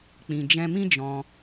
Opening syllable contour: low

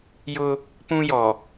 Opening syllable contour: high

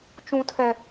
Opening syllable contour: high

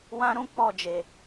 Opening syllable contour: high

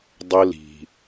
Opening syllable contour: high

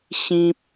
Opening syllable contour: high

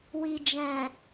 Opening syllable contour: low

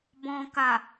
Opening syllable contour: low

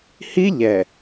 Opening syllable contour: high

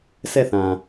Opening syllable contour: falling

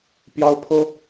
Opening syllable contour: high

